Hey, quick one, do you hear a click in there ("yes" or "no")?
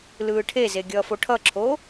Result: yes